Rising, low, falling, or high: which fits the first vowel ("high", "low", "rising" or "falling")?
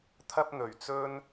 high